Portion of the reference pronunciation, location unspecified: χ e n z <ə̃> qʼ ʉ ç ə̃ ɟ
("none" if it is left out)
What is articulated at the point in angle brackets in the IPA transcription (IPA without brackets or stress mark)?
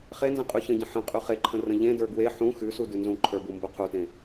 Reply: ə̃